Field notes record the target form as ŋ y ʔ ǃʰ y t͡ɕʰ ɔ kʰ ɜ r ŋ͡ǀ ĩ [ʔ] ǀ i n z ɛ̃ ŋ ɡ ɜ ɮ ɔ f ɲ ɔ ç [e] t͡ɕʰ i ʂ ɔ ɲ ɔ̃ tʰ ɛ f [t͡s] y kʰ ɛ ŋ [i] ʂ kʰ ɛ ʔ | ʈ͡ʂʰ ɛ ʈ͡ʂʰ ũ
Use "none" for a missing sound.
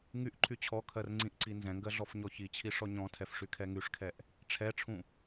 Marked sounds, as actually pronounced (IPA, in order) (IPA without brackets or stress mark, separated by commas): ʔ, i, ʂ, y